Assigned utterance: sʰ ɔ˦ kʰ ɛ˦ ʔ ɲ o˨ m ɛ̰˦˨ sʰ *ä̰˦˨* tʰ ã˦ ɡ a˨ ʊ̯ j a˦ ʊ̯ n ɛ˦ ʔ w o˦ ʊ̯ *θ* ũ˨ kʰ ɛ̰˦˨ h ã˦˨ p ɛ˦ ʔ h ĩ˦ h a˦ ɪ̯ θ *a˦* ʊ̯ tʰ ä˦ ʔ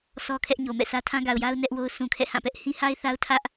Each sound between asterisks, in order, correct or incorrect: incorrect: ä˦, incorrect: s, correct

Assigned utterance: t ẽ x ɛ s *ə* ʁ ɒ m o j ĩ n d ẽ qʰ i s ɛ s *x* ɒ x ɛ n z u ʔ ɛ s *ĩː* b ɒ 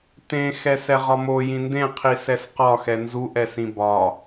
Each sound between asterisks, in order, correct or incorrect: incorrect: ɛ, incorrect: q, incorrect: ĩ

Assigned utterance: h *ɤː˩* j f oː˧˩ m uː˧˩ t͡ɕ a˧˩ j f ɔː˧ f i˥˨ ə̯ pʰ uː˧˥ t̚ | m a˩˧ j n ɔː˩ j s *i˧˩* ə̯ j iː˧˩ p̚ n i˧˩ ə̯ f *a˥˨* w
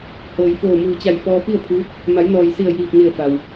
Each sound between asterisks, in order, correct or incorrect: correct, correct, incorrect: a˩

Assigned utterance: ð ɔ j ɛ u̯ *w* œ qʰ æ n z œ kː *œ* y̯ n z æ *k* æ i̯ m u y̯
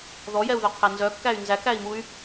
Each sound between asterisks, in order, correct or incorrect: incorrect: ð, incorrect: æ, correct

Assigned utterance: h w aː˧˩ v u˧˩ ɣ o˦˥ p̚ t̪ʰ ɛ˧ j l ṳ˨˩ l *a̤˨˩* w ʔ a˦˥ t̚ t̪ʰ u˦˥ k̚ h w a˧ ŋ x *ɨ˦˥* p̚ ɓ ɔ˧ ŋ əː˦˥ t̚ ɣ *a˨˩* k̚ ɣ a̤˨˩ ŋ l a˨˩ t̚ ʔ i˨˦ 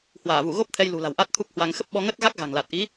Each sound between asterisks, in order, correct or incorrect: correct, incorrect: ə˦˥, incorrect: a˦˥

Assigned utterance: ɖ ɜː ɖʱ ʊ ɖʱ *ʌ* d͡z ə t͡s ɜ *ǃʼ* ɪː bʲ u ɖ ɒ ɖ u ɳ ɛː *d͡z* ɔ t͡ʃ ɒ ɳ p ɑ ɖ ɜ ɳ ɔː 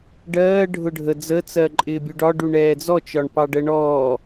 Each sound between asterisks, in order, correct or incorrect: incorrect: ə, correct, correct

